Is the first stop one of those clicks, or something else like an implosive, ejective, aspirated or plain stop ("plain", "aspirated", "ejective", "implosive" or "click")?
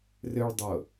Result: plain